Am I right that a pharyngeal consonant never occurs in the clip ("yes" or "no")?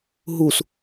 yes